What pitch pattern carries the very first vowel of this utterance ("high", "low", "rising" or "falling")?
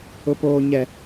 high